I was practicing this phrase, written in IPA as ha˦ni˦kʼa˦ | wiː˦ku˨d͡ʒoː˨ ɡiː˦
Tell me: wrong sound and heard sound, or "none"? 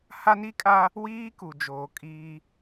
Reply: ɡ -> kʼ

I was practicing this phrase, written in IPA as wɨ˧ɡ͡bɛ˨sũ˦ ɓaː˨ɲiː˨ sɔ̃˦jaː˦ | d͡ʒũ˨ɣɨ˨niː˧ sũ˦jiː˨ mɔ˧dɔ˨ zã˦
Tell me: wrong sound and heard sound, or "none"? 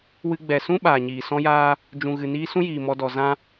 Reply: none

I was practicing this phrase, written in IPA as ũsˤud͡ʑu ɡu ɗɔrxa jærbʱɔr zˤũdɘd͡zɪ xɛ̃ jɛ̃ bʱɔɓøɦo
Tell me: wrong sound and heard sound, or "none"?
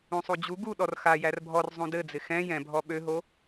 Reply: none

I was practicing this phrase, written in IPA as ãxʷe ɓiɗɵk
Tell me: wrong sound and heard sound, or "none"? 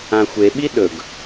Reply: k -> ɡ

